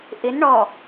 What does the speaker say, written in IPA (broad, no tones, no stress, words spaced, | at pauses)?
ʔɪn ɳɔ